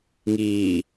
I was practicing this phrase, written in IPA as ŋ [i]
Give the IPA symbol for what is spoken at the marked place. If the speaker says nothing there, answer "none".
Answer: iː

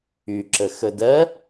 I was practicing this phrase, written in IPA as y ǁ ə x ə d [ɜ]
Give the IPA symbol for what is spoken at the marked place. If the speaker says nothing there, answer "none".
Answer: ɜ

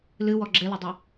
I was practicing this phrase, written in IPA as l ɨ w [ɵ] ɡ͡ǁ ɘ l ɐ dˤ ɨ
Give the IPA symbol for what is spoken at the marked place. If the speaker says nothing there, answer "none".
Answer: ɔ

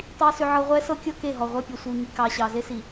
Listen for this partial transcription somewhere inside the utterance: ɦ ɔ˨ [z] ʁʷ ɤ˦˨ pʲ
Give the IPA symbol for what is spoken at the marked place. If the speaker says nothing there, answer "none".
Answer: none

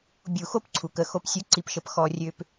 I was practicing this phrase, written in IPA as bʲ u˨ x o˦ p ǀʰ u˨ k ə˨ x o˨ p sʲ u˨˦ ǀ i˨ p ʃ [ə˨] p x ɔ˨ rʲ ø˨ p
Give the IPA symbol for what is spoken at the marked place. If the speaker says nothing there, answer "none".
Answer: ə˨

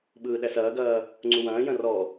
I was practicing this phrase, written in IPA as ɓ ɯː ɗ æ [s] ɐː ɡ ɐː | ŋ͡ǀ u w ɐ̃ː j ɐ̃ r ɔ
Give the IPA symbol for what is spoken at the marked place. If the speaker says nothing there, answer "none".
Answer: s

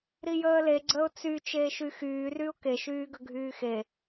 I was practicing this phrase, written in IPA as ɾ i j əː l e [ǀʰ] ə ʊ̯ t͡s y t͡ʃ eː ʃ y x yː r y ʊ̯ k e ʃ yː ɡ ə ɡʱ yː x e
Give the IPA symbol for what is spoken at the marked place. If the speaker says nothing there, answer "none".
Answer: ɡ͡ǀ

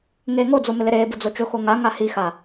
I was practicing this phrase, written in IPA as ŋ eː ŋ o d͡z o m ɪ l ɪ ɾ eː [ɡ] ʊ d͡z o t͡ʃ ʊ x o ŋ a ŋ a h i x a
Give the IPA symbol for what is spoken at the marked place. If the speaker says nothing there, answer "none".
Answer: b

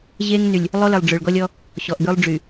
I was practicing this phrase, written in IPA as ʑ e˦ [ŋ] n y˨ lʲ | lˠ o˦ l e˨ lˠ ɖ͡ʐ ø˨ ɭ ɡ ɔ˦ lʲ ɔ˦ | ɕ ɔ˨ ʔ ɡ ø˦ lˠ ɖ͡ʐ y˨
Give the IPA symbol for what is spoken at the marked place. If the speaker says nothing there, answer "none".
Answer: ŋ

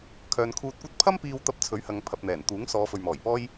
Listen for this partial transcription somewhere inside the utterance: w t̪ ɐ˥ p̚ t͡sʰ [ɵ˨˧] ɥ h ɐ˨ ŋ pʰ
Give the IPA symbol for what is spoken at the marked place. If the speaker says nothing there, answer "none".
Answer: ɵ˨˥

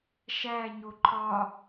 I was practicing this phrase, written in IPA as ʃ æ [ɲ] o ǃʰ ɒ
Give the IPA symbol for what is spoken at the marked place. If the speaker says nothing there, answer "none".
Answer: ɲ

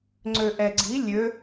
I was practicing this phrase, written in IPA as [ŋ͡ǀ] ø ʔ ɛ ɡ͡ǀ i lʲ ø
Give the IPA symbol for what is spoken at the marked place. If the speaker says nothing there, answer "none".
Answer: ŋ͡ǀ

